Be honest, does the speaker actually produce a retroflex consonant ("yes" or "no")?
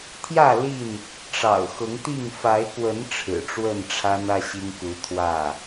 yes